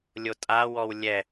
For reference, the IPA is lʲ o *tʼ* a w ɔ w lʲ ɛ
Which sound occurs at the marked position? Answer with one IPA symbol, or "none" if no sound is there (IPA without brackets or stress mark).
tʼ